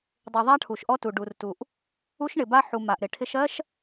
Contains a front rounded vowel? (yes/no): no